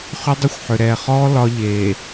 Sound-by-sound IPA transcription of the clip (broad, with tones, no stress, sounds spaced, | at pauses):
χ ʏ˦ dˤ ʏ˦ xʷ ħ ʏ˨ ɾ ɛ˨ χ ɔ˦ l ɒ˦ ʎ e˨